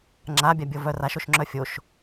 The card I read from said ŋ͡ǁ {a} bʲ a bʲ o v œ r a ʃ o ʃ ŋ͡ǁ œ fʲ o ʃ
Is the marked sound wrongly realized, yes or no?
no